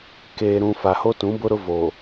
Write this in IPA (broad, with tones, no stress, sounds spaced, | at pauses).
k eː˨ ɾ ũ˨ f a˨ h o˦ t ũ˨˦ b ʊ˦ ɾ ʊ˦ v o˨